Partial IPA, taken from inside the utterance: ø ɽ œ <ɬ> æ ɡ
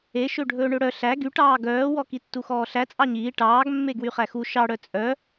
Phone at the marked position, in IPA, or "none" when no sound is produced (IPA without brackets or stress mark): ɬ